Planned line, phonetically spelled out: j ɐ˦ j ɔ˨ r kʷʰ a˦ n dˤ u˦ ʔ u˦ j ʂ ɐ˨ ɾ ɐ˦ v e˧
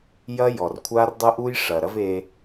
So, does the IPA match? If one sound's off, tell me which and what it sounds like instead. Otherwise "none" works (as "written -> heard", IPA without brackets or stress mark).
n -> r